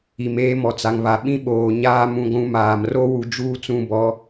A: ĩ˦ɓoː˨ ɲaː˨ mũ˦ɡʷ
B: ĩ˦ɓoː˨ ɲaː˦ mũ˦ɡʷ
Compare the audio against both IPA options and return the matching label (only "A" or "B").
B